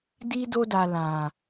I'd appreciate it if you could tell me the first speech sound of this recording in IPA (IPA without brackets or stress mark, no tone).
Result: d